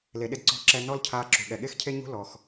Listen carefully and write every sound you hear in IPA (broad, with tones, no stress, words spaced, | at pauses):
le˩ɗɪ˧d ǀɔ̤˧ ǁɛ˧ nɔ˥lcʰaː˧ ǁṳ˩ɠɛ˩ɠe˥xcʰe˥ ɲṳ˥ lɔ˩x